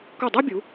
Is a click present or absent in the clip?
absent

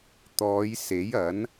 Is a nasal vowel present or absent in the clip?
absent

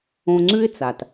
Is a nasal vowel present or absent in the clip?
present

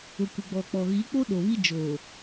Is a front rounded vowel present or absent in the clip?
absent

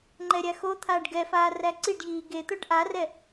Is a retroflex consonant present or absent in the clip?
present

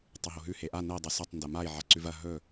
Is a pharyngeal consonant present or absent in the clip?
present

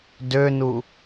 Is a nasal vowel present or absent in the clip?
absent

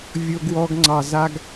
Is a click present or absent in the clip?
present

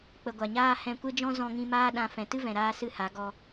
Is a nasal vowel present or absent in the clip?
present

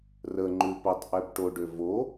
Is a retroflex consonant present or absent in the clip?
present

